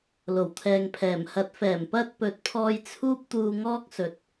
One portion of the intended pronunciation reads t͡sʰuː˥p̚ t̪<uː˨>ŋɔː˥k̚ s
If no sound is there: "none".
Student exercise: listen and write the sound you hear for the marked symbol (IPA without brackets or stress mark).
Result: uː˧